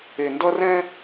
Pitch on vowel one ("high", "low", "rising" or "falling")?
low